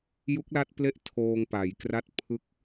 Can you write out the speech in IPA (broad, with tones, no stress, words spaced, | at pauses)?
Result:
ju˦˥k̚la˦˥t̚ple˦˥ʔ tʰoː˧ŋpa˩˦jkra˥˩t̚ pʰɯ˦˥k̚